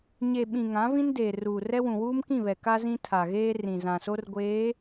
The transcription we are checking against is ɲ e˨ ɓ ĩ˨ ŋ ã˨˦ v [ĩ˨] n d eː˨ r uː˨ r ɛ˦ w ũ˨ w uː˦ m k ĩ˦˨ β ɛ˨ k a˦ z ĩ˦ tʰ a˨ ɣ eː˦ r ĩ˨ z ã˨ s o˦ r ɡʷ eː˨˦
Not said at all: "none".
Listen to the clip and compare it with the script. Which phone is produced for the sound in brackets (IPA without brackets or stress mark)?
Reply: ĩ˦